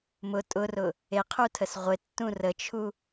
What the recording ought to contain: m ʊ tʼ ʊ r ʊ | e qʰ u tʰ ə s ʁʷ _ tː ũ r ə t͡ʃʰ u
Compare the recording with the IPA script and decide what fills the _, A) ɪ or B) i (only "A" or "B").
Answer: A